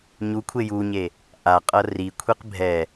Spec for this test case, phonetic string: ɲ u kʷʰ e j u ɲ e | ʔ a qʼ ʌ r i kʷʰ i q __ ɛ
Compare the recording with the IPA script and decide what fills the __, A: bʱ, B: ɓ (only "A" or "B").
A